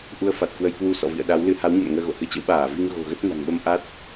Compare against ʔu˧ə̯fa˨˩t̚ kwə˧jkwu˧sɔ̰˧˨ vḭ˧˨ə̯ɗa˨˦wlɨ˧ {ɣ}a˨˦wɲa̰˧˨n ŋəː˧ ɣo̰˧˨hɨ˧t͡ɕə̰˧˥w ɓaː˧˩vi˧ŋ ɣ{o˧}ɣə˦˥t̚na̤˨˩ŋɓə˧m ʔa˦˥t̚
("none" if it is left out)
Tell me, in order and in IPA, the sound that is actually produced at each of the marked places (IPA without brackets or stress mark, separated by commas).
h, o̤˨˩